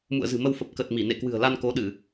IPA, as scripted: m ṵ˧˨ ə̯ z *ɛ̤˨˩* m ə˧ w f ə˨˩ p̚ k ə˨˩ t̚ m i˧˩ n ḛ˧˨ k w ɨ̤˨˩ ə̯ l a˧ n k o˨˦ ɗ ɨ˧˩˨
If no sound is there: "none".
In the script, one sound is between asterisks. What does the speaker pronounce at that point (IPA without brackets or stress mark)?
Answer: ɨ̤˨˩